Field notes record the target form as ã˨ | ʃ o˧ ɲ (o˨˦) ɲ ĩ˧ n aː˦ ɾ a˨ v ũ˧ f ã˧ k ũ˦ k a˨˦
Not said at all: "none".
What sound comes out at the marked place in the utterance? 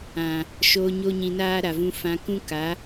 o˦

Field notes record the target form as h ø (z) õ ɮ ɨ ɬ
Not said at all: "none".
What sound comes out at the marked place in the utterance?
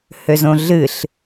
z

